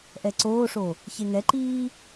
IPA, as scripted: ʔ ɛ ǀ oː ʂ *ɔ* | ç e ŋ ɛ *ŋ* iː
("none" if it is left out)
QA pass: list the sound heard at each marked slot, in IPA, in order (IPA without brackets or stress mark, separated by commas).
o, ǃ